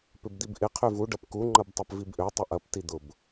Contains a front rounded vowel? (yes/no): yes